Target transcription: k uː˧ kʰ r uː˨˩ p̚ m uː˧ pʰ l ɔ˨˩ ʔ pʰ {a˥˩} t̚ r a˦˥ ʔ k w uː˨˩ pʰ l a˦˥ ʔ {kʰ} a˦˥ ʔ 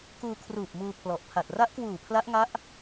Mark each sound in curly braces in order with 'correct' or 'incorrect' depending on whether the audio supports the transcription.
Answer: incorrect: a˨˩, incorrect: ŋ

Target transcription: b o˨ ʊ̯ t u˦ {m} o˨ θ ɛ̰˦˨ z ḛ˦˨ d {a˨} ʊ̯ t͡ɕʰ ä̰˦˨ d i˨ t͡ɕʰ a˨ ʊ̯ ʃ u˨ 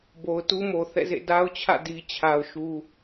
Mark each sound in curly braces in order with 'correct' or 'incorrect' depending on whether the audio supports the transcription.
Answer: correct, incorrect: a˦

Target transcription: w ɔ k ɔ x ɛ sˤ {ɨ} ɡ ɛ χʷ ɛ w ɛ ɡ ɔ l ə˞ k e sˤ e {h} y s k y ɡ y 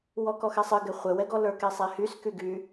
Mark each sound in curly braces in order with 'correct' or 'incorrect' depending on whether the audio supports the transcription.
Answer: correct, correct

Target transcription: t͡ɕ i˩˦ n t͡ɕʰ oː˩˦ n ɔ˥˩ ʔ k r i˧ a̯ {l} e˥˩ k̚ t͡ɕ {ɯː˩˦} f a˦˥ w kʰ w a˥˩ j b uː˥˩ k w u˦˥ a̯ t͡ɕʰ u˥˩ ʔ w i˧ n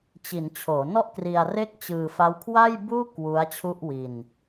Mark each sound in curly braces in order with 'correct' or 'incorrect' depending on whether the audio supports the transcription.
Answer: incorrect: r, incorrect: ɯː˧

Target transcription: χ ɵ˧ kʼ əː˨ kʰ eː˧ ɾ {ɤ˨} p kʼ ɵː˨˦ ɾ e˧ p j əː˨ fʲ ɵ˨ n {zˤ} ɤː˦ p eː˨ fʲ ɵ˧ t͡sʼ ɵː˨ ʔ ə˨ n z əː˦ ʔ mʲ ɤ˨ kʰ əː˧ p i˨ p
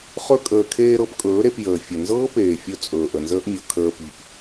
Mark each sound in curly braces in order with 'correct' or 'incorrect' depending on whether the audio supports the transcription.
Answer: incorrect: ɤ˦, incorrect: z

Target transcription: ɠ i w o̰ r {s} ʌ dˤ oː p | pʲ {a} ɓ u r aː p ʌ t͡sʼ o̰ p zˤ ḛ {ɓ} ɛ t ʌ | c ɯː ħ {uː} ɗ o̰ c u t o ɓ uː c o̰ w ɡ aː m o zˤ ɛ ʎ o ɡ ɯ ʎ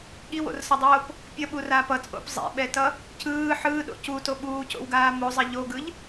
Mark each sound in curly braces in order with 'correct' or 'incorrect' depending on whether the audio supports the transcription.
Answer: correct, incorrect: ʌ, correct, incorrect: ɯː

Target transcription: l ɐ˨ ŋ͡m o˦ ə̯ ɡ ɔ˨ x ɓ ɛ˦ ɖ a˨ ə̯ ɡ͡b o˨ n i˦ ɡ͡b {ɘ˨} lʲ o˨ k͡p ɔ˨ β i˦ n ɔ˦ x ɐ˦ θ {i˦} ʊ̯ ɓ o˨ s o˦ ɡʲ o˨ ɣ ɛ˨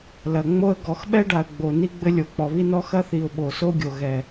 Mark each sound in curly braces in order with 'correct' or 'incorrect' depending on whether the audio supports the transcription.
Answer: incorrect: ɘ˦, incorrect: i˨

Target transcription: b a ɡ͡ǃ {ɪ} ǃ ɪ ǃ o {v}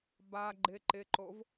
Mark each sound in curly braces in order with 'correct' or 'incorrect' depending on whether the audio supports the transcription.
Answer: correct, correct

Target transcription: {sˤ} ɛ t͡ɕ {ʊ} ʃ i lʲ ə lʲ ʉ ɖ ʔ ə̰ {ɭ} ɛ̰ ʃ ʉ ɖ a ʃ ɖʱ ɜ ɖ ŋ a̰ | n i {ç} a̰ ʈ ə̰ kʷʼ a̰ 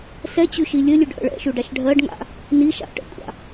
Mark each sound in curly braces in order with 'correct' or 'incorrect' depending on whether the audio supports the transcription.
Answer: incorrect: s, incorrect: ʉ, correct, incorrect: ʃ

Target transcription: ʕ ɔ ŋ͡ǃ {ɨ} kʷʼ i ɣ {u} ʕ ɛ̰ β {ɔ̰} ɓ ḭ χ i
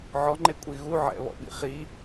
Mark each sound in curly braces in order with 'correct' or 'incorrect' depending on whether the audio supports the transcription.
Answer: incorrect: e, correct, correct

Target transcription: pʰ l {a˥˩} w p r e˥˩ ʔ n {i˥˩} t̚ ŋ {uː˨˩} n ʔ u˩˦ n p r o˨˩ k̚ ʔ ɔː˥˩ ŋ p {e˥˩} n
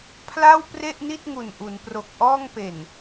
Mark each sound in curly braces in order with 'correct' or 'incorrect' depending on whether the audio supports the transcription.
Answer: correct, correct, incorrect: u˨˩, incorrect: e˨˩

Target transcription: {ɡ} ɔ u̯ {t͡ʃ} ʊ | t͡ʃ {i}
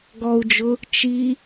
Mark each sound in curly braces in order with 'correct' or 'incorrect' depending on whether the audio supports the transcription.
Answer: correct, incorrect: d͡ʒ, correct

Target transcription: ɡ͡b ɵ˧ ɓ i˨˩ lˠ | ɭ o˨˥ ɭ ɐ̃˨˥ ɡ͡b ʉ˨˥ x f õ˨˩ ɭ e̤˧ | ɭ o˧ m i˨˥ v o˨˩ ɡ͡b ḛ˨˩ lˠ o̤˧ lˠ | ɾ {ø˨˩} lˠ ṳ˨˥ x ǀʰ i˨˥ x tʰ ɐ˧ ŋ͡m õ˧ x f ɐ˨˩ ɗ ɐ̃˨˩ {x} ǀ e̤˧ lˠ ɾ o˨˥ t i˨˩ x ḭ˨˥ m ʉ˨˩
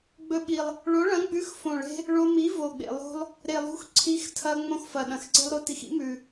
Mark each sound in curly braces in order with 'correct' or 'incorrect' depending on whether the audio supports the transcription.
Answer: incorrect: e˨˩, correct

